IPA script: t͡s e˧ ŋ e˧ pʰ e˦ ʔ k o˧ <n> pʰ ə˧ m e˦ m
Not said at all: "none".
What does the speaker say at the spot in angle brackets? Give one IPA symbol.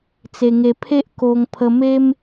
ŋ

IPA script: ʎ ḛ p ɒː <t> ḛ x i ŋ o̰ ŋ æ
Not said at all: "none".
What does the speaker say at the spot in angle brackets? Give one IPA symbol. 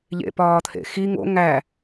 t̪ʰ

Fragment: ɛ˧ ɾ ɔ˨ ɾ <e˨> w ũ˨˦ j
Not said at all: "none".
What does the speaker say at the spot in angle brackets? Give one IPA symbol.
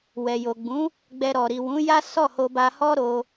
i˨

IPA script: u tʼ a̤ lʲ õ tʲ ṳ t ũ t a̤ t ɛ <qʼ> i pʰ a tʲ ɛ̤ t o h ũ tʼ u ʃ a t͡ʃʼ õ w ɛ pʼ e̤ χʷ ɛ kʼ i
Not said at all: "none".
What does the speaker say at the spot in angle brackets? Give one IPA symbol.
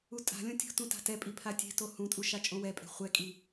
pʼ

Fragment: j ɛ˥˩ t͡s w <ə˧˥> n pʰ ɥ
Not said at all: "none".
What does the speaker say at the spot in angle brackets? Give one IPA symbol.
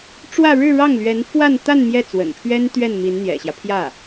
ə̰˨˩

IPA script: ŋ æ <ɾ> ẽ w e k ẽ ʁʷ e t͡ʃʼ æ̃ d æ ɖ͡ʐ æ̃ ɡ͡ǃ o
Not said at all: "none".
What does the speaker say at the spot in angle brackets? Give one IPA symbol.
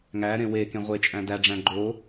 ɾ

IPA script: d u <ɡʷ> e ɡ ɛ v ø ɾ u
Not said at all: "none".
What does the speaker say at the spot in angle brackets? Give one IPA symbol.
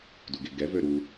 ɡ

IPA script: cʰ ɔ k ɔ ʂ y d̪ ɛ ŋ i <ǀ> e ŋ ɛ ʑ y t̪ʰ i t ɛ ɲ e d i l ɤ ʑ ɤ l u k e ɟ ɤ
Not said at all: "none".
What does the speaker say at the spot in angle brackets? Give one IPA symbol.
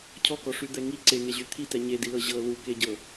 ǀ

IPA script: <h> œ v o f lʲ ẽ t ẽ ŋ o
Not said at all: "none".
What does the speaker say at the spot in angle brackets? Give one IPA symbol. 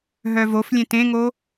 ɦ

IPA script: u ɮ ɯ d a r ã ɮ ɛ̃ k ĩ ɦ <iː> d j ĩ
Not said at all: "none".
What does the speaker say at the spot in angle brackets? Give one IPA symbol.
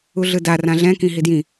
i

